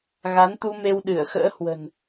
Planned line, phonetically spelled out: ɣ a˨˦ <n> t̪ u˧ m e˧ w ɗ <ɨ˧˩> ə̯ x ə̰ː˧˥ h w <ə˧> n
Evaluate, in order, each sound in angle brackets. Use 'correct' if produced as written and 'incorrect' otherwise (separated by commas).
correct, correct, incorrect